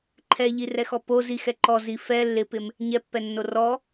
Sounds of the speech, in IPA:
ǃʰ ɛ ʎ i r ɛ x ɔ p o z i x ɛ ǃ ɔ z i f ɛ lː ɪ p ɪ m | ɲ ɛ pː ɛ nː o r ɔ

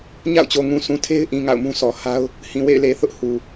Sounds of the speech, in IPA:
ɲ a̰˦˨ ʊ̯ t͡ɕ o˨ ŋ ũ˨ sʰ ũ˨ tʰ e˦ ɪ̯ ʔ ĩ˨ ŋ a̰˦˨ ʊ̯ m ũ˦ sʰ ɔ˨ h a˦ ʊ̯ | h ĩ˨ w ḛ˦˨ ɪ̯ l e˨ θ ʊ˦ ʔ h u˨

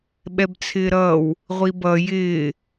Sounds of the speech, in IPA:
ɓ ɛ b t͡sʰ ɪː ɾ ʌː w | ʁʷ i b ʌ j ɪː

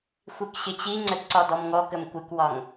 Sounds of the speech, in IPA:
xʷ i k ɕ ɪ t͡ɕ i ŋ͡ǀ ə d ǀ ɒ d ɔ m ŋ ɔ k ə m kʷ ɪ k w ɒ ŋ

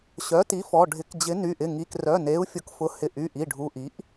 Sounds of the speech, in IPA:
ɕ œ˩˥ t i˩˥ f ɔ˩˧˩ ɖʱ ɪ˩˥ k d͡ʑ ɪ˩˥ n y˩˧˩ ʔ ɪ˩˧˩ ŋ i˩˧˩ k r œ˩˧˩ n e˩˥ u̯ fʲ ʊ˩˥ k f ʊ˩˥ h ɪ˩˧˩ ʔ y˩˧˩ ʔ i˩˧˩ ɖʱ u˩˧˩ ʔ i˩˥ ʔ

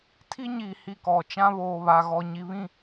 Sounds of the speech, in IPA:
tʰ i˦ ɲ iː˨ h i˦˨ k ɔ˨ t͡ʃ ã˦ β oː˨ β a˨ ɣ ɔ˨ ɲ i˨ β ĩ˦˨

